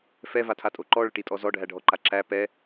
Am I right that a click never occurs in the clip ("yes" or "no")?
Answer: no